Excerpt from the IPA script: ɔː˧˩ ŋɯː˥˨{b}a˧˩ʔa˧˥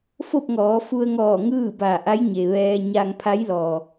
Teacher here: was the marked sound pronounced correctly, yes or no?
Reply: yes